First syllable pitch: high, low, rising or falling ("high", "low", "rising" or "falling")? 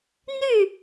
falling